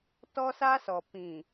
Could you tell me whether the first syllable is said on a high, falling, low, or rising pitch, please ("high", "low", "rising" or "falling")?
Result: high